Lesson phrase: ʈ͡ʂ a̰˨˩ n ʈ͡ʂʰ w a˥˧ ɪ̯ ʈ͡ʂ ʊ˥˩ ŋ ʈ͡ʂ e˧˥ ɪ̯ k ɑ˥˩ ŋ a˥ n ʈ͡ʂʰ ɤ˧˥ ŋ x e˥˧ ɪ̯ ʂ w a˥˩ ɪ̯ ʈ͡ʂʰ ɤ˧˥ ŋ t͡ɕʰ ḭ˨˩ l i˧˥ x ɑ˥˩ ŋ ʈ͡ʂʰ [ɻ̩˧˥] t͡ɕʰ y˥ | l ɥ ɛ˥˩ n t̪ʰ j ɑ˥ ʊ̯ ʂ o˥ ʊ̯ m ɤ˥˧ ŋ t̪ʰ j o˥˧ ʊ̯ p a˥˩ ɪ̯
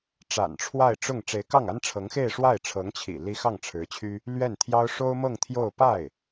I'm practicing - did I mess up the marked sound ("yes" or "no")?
no